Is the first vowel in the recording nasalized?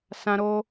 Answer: yes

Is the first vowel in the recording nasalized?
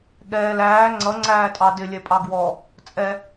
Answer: no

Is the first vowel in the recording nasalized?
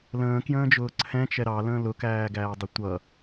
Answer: yes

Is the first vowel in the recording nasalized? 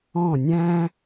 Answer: yes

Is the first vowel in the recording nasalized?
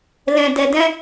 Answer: yes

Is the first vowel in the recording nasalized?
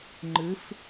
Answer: no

